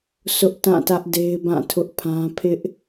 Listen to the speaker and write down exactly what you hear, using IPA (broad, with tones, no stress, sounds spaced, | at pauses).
s ʊ˦ ʔ t ã˦˨ t ä˦ ʔ d e˦ ɪ̯ b ã˦˨ tʰ ʊ˦ ʔ pʰ ã˦ pʰ ɪ˦ ʔ